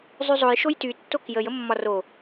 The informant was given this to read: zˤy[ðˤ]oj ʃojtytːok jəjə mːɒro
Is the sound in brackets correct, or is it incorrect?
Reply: incorrect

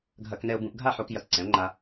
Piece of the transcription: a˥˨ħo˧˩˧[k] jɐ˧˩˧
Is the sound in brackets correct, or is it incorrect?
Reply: correct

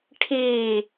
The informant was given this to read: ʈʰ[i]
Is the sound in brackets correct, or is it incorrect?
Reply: correct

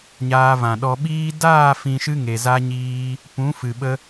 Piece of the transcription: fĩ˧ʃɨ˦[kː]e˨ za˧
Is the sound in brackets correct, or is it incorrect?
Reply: incorrect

